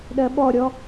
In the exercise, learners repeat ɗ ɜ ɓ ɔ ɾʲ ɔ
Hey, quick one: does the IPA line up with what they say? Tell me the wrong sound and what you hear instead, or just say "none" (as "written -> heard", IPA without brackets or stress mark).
none